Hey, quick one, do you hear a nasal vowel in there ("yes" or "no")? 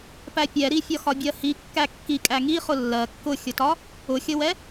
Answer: no